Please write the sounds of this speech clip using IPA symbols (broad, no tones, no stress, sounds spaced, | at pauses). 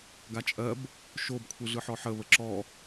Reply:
ɡ a t͡ʃʼ ɜ b | ʃ o b kʷʰ ɯ ɮ ɯ ħ ɔ ħ ə β ə ǁ ɔ